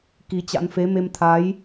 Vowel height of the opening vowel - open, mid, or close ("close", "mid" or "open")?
close